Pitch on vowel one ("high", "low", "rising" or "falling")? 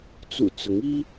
low